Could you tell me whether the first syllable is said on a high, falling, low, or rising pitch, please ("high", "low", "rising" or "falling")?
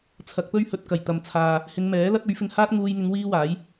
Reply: rising